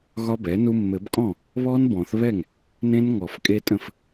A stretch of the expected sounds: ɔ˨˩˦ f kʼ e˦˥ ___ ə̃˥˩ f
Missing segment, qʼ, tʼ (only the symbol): tʼ